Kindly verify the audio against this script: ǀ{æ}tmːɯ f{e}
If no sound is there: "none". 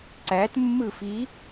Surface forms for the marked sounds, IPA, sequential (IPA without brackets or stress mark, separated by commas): æ, i